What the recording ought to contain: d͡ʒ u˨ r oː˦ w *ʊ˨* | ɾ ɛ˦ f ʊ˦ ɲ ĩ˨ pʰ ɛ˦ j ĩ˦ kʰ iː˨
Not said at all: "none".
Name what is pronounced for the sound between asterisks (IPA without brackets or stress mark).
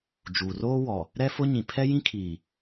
ɔ˨